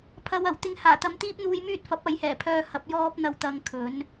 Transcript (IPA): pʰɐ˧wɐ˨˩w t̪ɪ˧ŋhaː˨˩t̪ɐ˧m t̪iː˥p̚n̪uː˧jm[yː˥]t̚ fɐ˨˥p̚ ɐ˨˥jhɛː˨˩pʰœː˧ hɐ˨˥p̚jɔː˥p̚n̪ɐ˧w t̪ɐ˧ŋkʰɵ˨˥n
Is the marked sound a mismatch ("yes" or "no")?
no